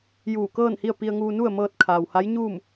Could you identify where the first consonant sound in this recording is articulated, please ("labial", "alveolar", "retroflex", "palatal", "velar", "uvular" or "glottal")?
palatal